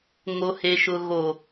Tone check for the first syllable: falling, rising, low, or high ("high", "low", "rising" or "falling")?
low